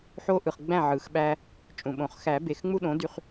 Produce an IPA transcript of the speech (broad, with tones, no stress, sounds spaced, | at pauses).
ħ o˦ ʔ ɯ˨ χ ɡ͡b æ̃˥˨ ʕ ɯ˨˩˦ x ɓ æ˦ | t͡ʃʼ ũ˨ ɓ õ˨˩˦ χ x æ˨˩˦ b e˨ x ŋ͡m u˦ ɗ õ˩˥ d y˦ χ